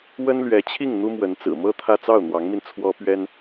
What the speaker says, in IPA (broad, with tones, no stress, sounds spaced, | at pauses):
w ə˥ n l ɥ ɛ˧˥ t͡ɕʰ i˥˩ ŋ n̪ u˥ m w ə˧˥ n t͡s ɹ̩˨˩ m ɤ˥ t̪ʰ ä˥˧ t͡s ɑ˥˩ ʊ̯ n̪ w ɑ˧˥ ŋ m i˧ n t͡sʰ w ɔ˥ p ɥ ɛ˥ n